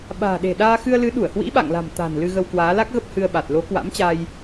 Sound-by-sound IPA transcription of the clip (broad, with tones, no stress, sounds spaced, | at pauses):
ɓ a̤ː˨˩ ɗ e̤˨˩ ɗ aː˧ x ɨ˧ ə̯ l ɨ˨˦ ɗ u˧˩ ə̯ h w ḭ˧˥ ɓ a̰˧˨ ŋ l a̤˨˩ m t̪ a̤˨˩ n l ɨ˧ ɣ ə˧ w k w aː˨˦ l a˦˥ k̚ ɣ ə˦˥ p̚ h ɨ˧ ə̯ ɓ a˨˩ t̚ l o˨˦ k w a̰˧˥ m t͡ɕ a˧ j